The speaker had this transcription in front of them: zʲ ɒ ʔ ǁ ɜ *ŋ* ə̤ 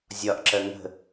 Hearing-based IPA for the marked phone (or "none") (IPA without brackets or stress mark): ŋ